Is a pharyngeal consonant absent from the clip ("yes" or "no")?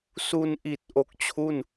yes